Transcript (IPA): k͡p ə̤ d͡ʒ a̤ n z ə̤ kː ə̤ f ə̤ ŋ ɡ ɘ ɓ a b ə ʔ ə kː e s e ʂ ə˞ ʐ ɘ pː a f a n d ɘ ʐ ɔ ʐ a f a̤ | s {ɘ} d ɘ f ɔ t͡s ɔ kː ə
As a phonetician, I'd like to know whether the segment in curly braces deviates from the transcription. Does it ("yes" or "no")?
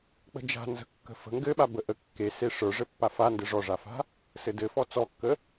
no